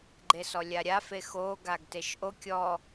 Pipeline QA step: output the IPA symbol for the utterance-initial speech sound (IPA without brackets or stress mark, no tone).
ɡ͡ǃ